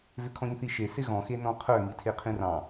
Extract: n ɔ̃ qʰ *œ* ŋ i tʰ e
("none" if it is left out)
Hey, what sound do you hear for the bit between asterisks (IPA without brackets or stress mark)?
œ